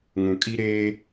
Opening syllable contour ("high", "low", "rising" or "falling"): low